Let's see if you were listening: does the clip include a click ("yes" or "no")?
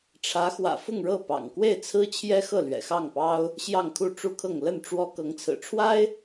no